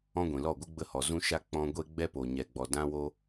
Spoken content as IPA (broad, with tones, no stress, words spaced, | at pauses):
ɔ̃˦ɡʷĩ˨lɔ˦˨ɡʷɨ˦ ɡ͡bə˦hɔ˨ zũ˦ʃa˦ k͡pɔ̃˧ɡʷe˦ɡ͡bɛ˦ po˨ɲɛ˨ɡ͡bɔ˨ dã˦wo˦